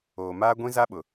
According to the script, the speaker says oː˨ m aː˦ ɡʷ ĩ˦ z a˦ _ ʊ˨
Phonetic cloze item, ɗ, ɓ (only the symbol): ɓ